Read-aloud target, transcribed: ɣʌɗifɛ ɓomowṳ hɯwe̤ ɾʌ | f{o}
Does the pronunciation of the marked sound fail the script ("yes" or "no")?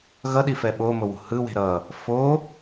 no